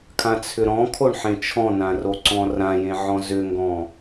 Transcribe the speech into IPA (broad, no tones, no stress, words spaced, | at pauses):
kʰãt͡sʰʏɾɔ̃kʰoɳ ħẽt͡ʃʰɔ̃nã roǀɔ̃rãjẽ ʕɔ̃zʏŋɡɔ̃